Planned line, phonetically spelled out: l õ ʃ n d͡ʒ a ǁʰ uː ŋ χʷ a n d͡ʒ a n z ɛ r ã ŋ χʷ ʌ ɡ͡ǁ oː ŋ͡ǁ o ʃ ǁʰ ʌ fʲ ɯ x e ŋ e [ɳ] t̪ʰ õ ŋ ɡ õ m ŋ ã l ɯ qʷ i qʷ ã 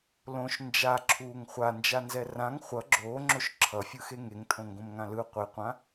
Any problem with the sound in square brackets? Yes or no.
yes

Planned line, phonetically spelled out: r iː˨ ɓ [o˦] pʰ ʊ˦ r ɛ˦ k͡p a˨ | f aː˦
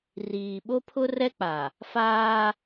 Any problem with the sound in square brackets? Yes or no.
no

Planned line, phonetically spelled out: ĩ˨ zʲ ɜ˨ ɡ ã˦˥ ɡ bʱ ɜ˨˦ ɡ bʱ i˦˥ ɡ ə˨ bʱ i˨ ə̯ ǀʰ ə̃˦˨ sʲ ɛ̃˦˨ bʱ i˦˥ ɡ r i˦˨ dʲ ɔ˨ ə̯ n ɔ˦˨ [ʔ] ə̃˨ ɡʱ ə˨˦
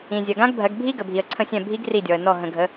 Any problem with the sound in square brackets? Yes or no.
yes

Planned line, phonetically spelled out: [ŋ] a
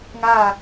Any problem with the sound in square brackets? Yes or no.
no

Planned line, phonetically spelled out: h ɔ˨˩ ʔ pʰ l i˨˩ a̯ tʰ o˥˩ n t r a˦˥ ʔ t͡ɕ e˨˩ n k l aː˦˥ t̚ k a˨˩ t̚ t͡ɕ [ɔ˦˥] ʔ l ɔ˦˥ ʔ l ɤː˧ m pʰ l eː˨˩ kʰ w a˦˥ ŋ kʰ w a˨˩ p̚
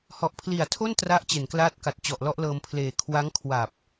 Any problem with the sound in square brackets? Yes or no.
yes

